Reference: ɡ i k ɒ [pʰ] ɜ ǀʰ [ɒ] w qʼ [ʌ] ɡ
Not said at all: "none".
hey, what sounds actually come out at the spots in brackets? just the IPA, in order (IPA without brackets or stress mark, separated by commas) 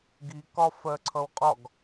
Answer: f, ʌ, ɒ